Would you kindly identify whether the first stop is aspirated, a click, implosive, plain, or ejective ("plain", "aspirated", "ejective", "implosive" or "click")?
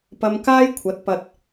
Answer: plain